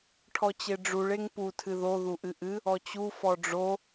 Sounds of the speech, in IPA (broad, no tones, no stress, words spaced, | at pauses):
ʈʰɔt͡ɕeɖ͡ʐuɭ eŋpu tʰɨðo ðuʔɨʔɨ | ɔt͡ɕu fɔɖ͡ʐo